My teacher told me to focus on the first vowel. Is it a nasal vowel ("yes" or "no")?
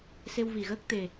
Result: no